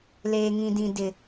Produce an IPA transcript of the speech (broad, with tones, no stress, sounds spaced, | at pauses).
l eː˨ ŋ ĩ˨ d ĩ˨ d ɪ˨